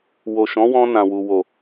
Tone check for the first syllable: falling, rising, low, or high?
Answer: low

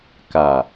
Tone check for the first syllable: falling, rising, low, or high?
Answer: low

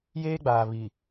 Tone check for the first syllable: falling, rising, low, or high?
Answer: high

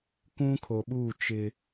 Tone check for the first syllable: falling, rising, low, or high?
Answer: high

